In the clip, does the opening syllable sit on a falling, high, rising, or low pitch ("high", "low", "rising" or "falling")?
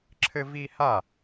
high